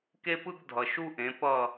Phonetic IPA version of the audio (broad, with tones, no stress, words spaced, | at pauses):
ke˥pɯ˥ɡdʱʌ˨ ʃu˥ʔẽ˨˦ pʌ˥˧